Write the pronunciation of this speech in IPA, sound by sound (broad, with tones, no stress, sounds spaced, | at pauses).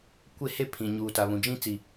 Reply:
kʷ e˦ h e˦ pʰ ĩ˨ ɲ uː˨ t a˨ β ũ˨ d͡ʒ ĩ˦ t͡s i˨